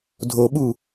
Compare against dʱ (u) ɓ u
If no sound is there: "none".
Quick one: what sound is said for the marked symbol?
o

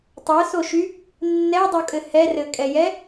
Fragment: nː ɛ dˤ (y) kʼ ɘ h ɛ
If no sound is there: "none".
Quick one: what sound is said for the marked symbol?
u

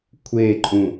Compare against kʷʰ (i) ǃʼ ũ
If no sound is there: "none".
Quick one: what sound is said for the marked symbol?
e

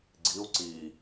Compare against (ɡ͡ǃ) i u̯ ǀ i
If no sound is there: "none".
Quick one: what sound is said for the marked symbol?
ɡ͡ǀ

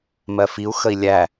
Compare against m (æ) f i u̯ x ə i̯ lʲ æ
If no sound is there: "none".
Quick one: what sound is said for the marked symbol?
ɜ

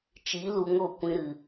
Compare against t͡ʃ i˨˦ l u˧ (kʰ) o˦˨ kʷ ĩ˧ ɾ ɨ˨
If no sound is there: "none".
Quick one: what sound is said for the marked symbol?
ŋ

